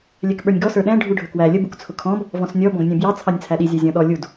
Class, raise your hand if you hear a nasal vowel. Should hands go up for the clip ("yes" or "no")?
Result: yes